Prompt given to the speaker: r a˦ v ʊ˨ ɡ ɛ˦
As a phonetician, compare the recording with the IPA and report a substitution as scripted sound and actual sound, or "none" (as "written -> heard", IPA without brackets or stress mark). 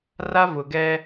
none